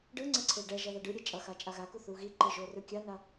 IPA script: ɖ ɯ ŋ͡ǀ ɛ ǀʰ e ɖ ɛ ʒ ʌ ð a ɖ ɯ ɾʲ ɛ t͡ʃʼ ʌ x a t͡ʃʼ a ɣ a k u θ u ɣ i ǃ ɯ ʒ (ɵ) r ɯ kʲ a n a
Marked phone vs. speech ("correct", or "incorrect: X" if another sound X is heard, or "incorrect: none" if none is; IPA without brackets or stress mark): incorrect: o